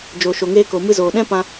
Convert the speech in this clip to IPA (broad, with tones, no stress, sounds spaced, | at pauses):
d͡ʒ o˨ ʃ o˨ ŋ eː˧ k o˨ m ɨ˧ z oː˨ ɗ ɛ̃˦ p ã˧